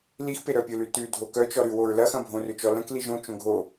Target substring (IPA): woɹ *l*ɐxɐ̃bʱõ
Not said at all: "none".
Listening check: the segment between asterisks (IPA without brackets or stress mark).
l